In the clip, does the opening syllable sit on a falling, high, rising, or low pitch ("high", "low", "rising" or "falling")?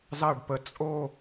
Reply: falling